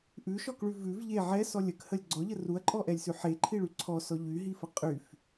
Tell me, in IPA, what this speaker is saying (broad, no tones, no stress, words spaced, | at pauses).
ʔʉʃɔkɭʉ vʉv ʎe ʕɛsɔ lʲəkhəlʲ ɡ͡ǀɔʎə ruɐ̯ǃʼɔʔɛlʲsʉ ħeǃʰiɭy ǀʰɔsɔ ʎyɦifə qʼyf